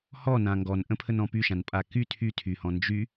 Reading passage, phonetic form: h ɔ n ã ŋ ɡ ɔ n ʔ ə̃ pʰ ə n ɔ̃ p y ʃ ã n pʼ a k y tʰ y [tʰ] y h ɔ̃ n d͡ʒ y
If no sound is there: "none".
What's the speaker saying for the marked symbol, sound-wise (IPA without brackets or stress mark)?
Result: tʰ